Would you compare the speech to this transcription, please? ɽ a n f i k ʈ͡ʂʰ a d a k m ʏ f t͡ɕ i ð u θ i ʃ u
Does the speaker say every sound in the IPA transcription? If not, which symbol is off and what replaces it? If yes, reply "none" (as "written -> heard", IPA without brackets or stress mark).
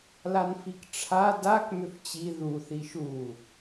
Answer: ɽ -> l